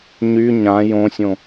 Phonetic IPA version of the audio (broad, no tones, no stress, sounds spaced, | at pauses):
ɲ y ɲ ã j õ sʲ õ